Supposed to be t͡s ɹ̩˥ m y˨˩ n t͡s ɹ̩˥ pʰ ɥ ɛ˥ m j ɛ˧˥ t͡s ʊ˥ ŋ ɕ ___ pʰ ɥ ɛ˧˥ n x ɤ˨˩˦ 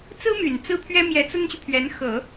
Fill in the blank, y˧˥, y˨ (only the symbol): y˨